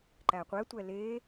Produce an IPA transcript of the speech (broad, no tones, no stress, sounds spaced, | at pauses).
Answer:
ǃ æ qʷ ɛ tʷ ɛ l e